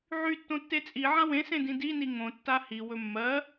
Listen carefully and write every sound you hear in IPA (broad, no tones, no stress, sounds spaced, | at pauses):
ʕ y tː õ tː e t͡sʼ i ʕ ã w ẽ s ẽ d ĩ d i n i ŋ õ tː a h i w ɵ mː ɜ